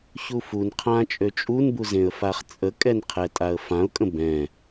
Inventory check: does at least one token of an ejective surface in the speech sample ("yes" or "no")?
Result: yes